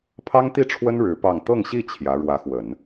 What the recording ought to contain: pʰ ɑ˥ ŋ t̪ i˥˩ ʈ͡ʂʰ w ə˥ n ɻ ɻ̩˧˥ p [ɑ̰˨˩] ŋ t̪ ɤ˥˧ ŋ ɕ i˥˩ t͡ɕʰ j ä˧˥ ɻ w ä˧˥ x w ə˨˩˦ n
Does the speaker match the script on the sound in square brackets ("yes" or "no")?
no